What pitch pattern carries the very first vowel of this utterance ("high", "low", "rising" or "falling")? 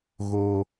high